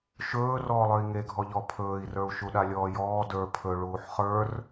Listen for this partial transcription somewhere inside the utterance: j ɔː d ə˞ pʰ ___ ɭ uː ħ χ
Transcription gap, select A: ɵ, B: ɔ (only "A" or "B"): A